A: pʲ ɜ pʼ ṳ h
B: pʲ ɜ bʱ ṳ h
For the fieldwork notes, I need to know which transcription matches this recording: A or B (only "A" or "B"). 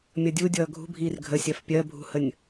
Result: B